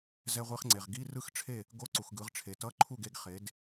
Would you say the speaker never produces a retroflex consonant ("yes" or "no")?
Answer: no